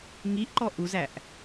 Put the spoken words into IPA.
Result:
ŋ i ʔ ǃ ɔ ʔ u z æ ʔ

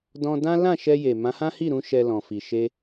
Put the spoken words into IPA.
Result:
d ɔ̃˧ d ã˦ l ã˦˨ ʃ ɛ˧ j e˨ m ã˨˦ h ã˦ h i˦˨ ɾ ũ˧ ʃ ɛ˧ l ɔ̃˨ f i˨ ʃ e˧

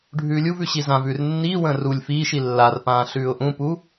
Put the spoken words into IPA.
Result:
ɖʱ ʉː lʲ u v ʉ ɕ i z ã v ʉː r nː iː w ə̃ː r u lʲ f iː ʃ i lː a r p ãː ɬ ʉː ʊ̯ ʔ ũ p u

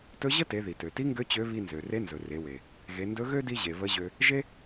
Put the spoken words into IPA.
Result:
t ɵ˧˥ ʑ ə˥ t e˩˧ ð i˩ t ø˩ t i˧˥ ŋ ɡ ø˧˥ t͡ɕ ø˧˥ β i˧ n z ø˩ r e˧˥ n z ɵ˩ r e˩˧ w e˩ | ɣ e˩˧ n d ɵ˧˥ ɣ ø˥ d i˧ ʑ e˩ β ə˧˥ ʑ ø˧ | ʒ e˥

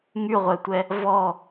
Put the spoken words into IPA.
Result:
ŋ y ʁʷ ɛ tʷ ɛ | v ɔ

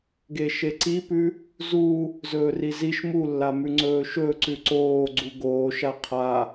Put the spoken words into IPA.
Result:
ɡ e ʃ e ǀ i p ʉ | z u | z ɵː r i z i ʃ m u lː a m ʉ ŋ͡ǀ ɵː ʃ ɵ ǀ ʉ ǀ oː ɡ͡ǀ u ɡ oː ʃ a qʰ a

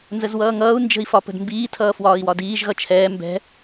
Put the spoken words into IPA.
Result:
n z ə z w ʌː ŋ ʌː u̯ n d͡ʒ ə̤ i̯ f ɒ p ə̤ d m b iː tʰ ʌː f w ɒː i̯ w ɒ d iː ʒ ɣ ʌ t͡ʃʰ ɛː m b ɛ̤

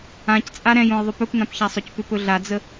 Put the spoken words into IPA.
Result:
ã c t͡sʼ a ɾ ɛ̃ j õ j ðˤ ʏ p ɵ p n ã p ç a sˤ ɵ c p ʏ p ɵ ɮ a d͡z ə

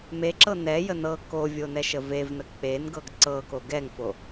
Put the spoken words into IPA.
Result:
m e ǁ ɤ n ɛ j ə n ɤ k o vʲ o n ɛ ʃ ə v e v n ə k͡p e n ɡ ɤ ɡ ǀ ɤ k o ɡ ɛ ŋ f o

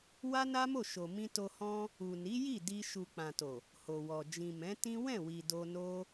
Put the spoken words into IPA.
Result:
w a˦ n a˦ m o˦˨ ʃ o˨ m ĩ˧ t o˧ h ɔ̃˦ | u˨ n i˨˦ j i˦˨ d i˧ ʃ u˨ k͡p ã˨ t o˨ | h o˨ w ɔ˨ d͡ʒ ĩ˨ m ɛ̃˨˦ t ĩ˦ w ɛ̃˦˨ w i˨ d o˧ n o˦

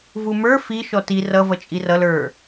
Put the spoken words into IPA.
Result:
v u m ə˞ f i ʃ ɔ t i r ʌ v ʌ t͡ʃʼ i r ʌ l ə˞

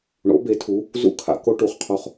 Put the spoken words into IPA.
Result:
ɳ o̰˩˥ b e˩˥ tʰ u˩˥ | z ṵ˥ kʰ a̰˧ k o˥ ʈ u˨˩ χ qʰ o˧ χ

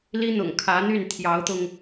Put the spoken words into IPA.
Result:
l i˥ n̪ ʊ̰˨˩ ŋ kʰ ä˧˥ n̪ y˥˩ n t̪ʰ j ɑ˧˥ ʊ̯ t̪ ʊ˧ ŋ

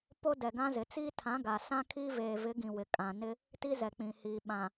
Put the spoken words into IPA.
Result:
p o˦ d ɛ˨ ɡ ã˦ z ɪ˨ t͡s iː˦ tʰ ã˨˦ ɡ a˨ s ã˦ kʰ iː˦ v eː˨ v ɪ˨˦ ɡ ĩ˨ w ɪ˨ kʼ ã˨ n ɪ˦ | t i˦ z ɛ˨ k͡p ĩ˨ h iː˨ ɓ ã˨

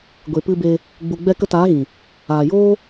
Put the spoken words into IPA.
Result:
ɡʷ e˨ p ɨ˧ b e˧ | ɡ͡b u˨ ɡ͡b ɛ˧ k ə˧ t aː˨˦ ɣ ĩ˨ | aː˨ j oː˦

